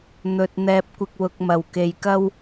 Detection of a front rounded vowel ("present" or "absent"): absent